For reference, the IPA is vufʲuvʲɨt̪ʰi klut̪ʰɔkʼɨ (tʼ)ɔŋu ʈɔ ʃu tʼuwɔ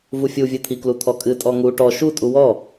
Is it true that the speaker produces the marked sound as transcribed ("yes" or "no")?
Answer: yes